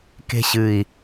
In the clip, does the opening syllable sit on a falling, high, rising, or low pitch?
high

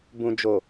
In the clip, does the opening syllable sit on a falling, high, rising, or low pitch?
low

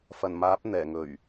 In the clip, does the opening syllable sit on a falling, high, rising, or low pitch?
low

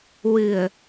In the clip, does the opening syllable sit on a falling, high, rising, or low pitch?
low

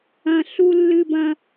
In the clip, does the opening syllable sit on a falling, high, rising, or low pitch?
high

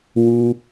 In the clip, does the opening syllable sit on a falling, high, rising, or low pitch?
high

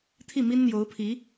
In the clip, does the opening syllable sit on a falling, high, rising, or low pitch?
falling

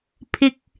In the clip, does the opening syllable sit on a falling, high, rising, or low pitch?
low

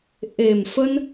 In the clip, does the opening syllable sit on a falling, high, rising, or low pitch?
low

